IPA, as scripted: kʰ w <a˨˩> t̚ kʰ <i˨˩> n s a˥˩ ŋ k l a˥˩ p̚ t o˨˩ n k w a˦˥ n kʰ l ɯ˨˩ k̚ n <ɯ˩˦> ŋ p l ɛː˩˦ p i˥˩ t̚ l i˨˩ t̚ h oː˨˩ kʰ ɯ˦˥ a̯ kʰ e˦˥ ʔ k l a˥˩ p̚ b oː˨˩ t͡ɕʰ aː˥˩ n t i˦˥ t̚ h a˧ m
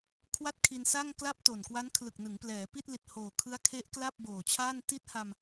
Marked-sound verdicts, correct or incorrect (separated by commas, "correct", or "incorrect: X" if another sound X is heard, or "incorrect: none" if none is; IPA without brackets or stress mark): incorrect: a˥˩, incorrect: i˧, correct